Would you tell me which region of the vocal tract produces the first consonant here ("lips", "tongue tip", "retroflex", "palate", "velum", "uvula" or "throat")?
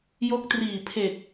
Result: palate